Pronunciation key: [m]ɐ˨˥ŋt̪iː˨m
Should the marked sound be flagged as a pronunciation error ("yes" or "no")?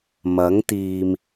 no